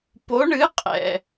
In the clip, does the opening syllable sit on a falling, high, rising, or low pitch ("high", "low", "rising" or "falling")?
rising